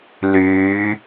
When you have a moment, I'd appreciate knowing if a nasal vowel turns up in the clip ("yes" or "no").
no